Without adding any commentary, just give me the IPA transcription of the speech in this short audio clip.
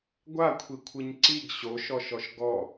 ɡʷ a kʷʰ i kʷʰ ɯ ɲ ǀ i ɡ ɕ o ʃ ɔ ʃ ɔ ʃ ɡ ɔ

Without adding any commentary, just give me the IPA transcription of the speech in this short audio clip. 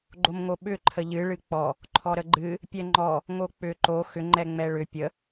ɡ͡ǃ o m ŋ o ɓ ʏ ǃʰ ə ʎ ɨ ɭ ɨ k͡p ɔ | ǃʰ ɔ ɾ ə ɡ͡ǃ ɨ | pʲ ɛ ŋ͡ǃ ɔ | ŋ o k͡p ʏ ǃ o x ʏ ŋ͡ǃ ɛ ŋ͡m ɛ ɭ ʏ pʲ ə

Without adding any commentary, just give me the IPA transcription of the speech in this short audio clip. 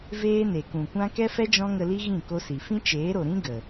v eː˦ n e˨ k ũ˨ kʷ ã˦ k ɛ˦ f ɛ˦ d͡ʒ ɔ̃˦ ŋ ə˧ l i˦ ɣ ĩ˦˨ k o˦ s i˨ f ĩ˦ t͡ʃ eː˨˦ ɾ o˨ ɾ ĩ˦ ɡ ə˨

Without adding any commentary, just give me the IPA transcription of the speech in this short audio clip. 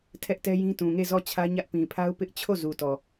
tʰ ɛ˦ ʔ t ɛ˦ j ĩ˦ t ũ˨ ŋ e˦˨ z ɔ˦˨ t͡ɕʰ ä˦ ɲ ä˦ ʔ p ĩ˨ pʰ a˦ ʊ̯ p ɪ˦ ʔ t͡ɕʰ o˦˨ z u˨ t ɔ˨

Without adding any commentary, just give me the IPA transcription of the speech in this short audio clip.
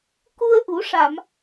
k u˧ ə̯ ʔ u˨˩˦ ʂ a˨˩˨ m

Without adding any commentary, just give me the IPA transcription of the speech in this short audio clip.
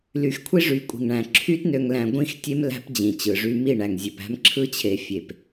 l y˨ x kʷʰ i˦ ʐ y˨ kʷʼ i̤˨ ŋ ɳ æ̃˨ ǁʰ y˦ t n ø˨ ŋ l æ̃˨ ɡʷ ĩ˦˨ x tʲ e˦ m l æ̤˦ p d͡ʑ ĩ˨ t͡ɕ ɯ˨ ʐ y˦ m i˦˨ ɳ æ˨ ŋ zʲ ø˨ p æ̤˦ m ǁʰ ɯ˦ t͡ɕʰ e˨ fʲ e˨ p

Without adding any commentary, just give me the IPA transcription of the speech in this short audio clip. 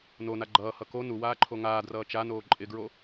n o n a ɡ͡ǃ ʌː h ʌ k o n u w aː ǃʰ o ŋ aː d r ʌː t͡ʃ a n oː ǃʼ ɪ ɡ ɹ o

